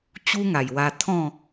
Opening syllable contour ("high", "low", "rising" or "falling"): high